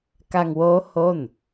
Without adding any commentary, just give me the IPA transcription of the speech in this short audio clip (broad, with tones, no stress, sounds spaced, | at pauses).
k a˧ ŋ w oː˦˥ h o˥˩ n